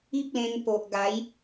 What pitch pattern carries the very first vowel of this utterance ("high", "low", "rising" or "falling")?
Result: high